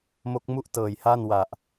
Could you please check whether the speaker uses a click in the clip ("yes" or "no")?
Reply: no